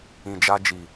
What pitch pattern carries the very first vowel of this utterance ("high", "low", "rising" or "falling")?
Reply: low